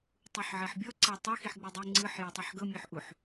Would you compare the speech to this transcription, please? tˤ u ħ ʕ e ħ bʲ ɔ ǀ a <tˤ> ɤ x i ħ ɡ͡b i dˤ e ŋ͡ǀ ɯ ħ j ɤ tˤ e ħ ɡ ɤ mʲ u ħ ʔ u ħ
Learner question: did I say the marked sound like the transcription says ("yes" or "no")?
yes